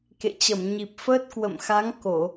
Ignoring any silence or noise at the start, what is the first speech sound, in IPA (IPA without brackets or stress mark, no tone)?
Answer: k